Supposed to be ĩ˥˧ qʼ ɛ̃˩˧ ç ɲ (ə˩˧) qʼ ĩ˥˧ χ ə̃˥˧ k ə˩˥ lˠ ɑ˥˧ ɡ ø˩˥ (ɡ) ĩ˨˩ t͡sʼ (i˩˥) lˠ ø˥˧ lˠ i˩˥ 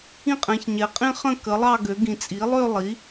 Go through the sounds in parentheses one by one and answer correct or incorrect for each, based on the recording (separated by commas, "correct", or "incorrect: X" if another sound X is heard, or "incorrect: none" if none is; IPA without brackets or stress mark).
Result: incorrect: ɛ˩˧, correct, correct